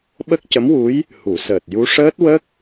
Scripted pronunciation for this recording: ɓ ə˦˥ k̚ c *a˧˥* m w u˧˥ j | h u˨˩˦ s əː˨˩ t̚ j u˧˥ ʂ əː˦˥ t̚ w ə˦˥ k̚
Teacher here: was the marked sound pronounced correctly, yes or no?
no